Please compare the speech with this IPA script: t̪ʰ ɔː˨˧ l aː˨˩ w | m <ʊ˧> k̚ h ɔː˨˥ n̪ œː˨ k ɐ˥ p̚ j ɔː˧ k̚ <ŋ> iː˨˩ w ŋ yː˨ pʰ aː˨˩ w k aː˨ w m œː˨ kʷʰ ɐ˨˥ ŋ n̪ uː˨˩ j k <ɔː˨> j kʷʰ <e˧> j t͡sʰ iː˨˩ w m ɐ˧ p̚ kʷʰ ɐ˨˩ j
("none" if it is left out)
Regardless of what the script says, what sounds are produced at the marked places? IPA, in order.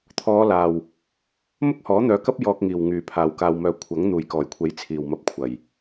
ʊ˥, ŋ, ɔː˨˩, e˨˥

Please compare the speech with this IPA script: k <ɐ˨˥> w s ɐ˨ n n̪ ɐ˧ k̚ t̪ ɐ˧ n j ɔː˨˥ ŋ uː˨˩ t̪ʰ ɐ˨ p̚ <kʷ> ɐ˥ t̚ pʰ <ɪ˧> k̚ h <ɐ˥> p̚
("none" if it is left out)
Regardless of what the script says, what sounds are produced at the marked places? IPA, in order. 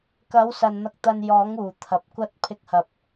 ɐ˨˥, kʷ, ɪ˧, ɐ˨

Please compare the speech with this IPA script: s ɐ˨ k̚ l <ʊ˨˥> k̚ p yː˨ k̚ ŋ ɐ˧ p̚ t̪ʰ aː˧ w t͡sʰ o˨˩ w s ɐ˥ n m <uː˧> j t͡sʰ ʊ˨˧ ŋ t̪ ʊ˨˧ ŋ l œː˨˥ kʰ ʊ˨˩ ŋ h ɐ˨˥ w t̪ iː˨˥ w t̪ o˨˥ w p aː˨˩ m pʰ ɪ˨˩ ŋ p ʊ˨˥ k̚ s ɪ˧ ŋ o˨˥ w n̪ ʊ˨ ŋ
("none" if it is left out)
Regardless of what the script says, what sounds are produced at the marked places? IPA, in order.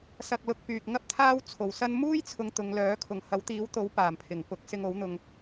ʊ˨, uː˥

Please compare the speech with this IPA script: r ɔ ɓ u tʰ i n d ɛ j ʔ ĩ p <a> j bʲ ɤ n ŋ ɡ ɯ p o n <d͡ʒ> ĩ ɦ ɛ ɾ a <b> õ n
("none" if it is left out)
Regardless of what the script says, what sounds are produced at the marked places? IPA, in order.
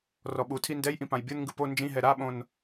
ã, d͡ʒ, ɓ

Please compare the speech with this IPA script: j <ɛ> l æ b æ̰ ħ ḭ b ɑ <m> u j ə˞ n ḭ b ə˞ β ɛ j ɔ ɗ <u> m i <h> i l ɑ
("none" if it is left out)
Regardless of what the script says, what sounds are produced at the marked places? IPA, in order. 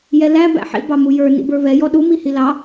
ɛ, m, u, h

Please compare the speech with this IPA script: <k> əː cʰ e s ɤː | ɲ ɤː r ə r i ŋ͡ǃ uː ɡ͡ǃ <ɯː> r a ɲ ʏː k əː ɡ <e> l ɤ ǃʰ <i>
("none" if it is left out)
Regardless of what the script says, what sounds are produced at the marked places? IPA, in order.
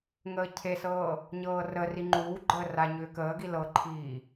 ŋ, əː, i, iː

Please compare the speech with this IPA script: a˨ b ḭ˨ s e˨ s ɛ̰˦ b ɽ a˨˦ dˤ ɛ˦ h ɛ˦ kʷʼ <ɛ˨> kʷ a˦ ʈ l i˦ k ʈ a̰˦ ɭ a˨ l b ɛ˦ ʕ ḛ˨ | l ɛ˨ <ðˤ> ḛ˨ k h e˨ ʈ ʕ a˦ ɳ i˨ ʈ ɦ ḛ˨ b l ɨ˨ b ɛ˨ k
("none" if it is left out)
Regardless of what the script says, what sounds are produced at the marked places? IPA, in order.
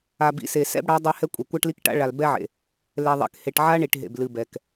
ɛ˨, ðˤ

